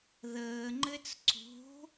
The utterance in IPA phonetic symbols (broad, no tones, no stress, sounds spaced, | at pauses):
ð əː ŋ͡ǃ ɘ t͡s ǀ o̤